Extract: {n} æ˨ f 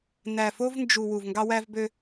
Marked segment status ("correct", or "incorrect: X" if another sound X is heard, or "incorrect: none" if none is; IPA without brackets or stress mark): correct